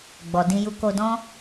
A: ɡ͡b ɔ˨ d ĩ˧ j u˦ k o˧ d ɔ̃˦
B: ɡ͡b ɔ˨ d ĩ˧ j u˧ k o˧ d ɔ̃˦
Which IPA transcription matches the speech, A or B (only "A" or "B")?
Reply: B